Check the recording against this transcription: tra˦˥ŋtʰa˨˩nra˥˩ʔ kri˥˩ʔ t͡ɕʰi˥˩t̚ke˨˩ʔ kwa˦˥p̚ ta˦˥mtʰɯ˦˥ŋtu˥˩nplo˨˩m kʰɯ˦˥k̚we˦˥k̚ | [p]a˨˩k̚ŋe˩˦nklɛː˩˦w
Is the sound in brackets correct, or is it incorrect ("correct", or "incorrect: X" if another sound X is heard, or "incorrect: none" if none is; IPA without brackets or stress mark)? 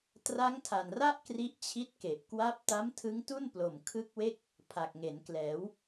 incorrect: pʰ